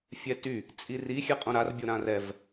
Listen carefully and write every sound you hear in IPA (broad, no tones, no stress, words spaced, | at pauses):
fʲɛty | t͡sʼiri xʲɛqʼõɾar bʲoɾãrɛv